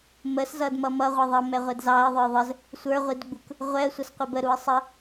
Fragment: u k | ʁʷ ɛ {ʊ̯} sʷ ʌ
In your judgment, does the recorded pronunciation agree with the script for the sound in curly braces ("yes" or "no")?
no